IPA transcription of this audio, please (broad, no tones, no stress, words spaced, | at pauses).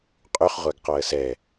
qʼyχ ʁʷæɡqɔə̯sɛ